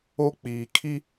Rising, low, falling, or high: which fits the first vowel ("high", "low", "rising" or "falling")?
high